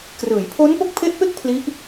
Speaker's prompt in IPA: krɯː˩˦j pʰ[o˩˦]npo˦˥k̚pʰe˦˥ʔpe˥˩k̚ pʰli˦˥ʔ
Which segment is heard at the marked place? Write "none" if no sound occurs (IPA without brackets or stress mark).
o˦˥